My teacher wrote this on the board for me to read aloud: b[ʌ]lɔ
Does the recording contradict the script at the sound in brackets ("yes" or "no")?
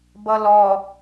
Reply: no